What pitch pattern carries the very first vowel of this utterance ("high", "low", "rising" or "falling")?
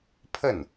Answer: falling